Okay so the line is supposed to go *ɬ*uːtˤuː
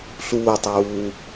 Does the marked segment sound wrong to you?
no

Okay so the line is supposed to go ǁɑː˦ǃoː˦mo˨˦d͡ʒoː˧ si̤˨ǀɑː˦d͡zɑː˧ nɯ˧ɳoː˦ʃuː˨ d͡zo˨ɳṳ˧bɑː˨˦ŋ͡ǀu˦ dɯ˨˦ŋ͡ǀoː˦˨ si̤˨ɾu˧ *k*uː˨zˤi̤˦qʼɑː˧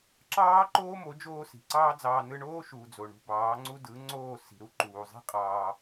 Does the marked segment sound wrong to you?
yes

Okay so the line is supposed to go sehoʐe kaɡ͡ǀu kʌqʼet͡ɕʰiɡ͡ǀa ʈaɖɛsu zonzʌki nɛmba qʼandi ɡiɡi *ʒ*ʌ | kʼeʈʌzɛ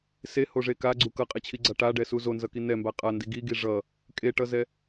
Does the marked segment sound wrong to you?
yes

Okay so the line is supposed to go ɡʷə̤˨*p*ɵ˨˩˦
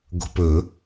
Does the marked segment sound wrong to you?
no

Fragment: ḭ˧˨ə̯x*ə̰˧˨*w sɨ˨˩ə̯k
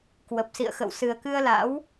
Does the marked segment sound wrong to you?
no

